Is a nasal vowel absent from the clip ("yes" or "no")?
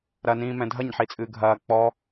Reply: no